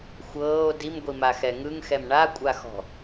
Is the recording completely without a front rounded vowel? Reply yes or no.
yes